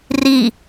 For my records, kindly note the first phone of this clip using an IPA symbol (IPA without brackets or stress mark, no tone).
r